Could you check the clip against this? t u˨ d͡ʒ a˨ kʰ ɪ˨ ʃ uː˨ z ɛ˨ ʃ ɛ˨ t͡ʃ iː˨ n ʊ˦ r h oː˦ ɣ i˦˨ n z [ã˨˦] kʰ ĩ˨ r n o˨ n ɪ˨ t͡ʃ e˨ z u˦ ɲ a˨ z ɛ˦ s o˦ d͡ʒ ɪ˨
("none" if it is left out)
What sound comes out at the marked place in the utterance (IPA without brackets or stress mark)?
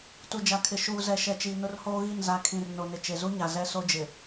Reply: a˨˦